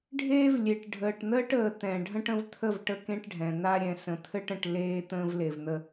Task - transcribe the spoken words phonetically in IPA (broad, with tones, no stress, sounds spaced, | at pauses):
ɖʱ eː˦ v lʲ e˨ ʈ ɖʱ əː˨ ʈ n̪ əː˦ ʈ əː˨ t̪ ɛ̃˨ ɖʱ ə̃˦ ʈ ə̃˦ v t̪ʰ ə˦˨ v ʈ ə˦ k ẽ˦ ʈ ɖʱ ɛ̃˨ n̪ a˦ ɾʲ ɛ̃˨ s ə̃˨ t̪ʰ ɘ˦ ʈ ə̃˨ ʈ l eː˦ t̪ ə̃ː˦ v l e˨ v n̪ ə˦